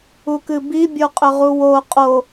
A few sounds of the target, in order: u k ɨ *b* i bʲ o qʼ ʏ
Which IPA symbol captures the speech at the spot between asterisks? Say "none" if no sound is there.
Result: b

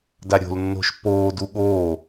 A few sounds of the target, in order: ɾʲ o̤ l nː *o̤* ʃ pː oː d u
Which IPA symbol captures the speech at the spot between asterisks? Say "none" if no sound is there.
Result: o̤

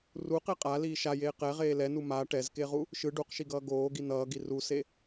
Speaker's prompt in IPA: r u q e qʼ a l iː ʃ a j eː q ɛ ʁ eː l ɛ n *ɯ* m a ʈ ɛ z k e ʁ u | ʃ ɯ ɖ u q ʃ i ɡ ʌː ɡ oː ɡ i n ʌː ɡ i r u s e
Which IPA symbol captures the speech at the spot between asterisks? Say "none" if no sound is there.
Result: u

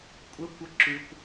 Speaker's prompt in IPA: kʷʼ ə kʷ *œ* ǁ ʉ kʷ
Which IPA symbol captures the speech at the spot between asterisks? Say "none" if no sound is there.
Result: ə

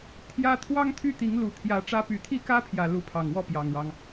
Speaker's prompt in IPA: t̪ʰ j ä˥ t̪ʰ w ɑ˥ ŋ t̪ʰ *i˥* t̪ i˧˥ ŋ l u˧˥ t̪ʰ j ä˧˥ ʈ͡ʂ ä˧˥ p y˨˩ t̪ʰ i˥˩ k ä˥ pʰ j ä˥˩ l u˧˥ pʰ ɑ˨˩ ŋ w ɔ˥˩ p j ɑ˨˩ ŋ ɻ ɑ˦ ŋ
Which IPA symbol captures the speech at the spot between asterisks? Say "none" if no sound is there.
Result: y˥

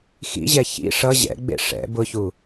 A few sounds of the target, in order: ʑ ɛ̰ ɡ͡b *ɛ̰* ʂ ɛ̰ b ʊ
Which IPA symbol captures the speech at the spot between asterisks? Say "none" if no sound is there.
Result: ḛ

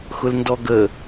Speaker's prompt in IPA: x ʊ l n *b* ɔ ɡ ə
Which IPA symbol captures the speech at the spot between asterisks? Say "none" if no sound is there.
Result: d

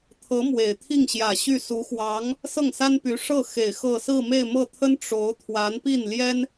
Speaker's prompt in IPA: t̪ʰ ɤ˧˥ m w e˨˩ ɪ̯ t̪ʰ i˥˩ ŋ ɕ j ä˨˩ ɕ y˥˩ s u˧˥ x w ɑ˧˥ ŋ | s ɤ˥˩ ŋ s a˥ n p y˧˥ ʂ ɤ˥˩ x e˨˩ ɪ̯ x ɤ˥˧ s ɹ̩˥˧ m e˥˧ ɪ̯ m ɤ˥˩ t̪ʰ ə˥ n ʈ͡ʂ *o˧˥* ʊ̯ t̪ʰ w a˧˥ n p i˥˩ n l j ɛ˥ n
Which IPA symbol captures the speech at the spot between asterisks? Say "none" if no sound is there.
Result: o˧˥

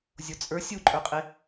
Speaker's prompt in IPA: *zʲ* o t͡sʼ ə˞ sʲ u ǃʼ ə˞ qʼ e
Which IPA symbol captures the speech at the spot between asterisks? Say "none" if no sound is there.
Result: zʲ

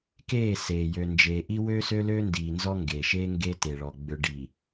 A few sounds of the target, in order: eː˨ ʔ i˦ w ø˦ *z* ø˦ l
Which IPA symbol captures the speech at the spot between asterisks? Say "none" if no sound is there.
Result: s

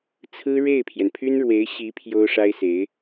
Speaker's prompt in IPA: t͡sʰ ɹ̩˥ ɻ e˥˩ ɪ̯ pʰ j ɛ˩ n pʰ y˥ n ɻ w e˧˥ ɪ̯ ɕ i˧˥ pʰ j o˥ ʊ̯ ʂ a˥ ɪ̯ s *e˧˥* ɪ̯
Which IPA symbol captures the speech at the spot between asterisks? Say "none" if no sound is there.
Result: e˧˥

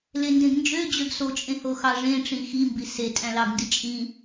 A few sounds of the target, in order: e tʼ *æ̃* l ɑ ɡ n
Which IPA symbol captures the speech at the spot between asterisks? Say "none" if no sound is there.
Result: æ̃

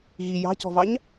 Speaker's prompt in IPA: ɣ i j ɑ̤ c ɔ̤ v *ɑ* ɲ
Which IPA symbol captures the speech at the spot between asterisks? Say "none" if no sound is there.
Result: ɑ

